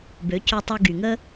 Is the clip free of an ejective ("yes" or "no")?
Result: yes